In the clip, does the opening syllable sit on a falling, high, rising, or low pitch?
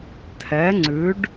rising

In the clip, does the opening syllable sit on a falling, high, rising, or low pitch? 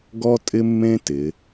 high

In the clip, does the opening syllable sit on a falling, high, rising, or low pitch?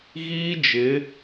high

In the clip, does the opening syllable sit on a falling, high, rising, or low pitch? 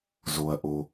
low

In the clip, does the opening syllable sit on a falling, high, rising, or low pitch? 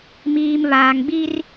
low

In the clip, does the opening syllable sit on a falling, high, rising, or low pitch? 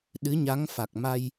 rising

